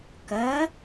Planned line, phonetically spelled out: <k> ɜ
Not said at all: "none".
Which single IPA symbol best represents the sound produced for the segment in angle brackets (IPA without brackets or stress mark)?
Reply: k